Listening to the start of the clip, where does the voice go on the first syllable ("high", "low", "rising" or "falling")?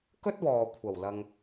high